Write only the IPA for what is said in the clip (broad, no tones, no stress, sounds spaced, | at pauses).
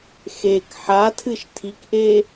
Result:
x e k ħ a tʰ ɨ ʃ tʰ i k ʔ e